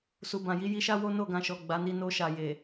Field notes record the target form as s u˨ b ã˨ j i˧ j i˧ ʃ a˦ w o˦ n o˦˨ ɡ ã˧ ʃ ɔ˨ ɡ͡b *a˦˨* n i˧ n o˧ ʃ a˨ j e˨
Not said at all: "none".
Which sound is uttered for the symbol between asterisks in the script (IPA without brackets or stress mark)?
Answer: a˨˦